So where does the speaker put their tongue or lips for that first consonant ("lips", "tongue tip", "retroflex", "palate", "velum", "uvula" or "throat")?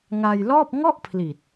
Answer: velum